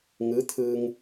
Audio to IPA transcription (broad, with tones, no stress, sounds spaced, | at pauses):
ŋ ɯː˧˥ t̪ʰ ɯː˧ ŋ